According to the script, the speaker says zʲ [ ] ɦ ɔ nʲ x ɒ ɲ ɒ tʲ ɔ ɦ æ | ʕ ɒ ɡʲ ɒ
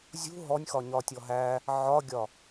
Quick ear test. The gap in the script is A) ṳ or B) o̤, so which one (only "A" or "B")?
A